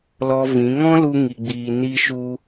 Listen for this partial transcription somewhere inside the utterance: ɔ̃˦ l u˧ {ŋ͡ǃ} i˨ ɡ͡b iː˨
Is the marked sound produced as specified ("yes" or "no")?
no